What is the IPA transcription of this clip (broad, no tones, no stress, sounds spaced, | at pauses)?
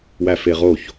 w æ f e ʁ o ç